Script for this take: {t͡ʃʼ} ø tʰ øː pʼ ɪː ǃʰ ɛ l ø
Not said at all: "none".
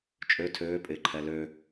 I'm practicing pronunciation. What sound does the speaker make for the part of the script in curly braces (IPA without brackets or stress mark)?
t͡ʃʼ